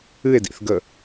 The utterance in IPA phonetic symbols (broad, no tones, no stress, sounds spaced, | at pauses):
ɨ e̯ d ḭ θ ɡ ə